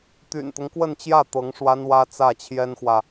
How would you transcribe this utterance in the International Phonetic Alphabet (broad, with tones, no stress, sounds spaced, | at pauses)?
t̪ y̰˨˩ n t̪ ʊ˦ ŋ k w ə˥˧ n t͡ɕ j ä˥˩ t̪ ɤ˧˥ ŋ ʂ w a˥ n w ä˥ t͡s ä˥˩ t͡ɕʰ j ɛ˥ n x w ä˨